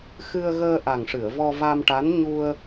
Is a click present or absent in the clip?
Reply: absent